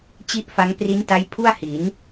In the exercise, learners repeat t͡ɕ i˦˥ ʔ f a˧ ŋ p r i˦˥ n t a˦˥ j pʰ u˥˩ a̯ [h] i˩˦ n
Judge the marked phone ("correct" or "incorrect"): correct